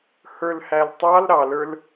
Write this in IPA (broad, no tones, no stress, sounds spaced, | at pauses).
h ə˞ l h æ l tˤ ɑ l ɾ ɑ l ə˞ l